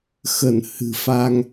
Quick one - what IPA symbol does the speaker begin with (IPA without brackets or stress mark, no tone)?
x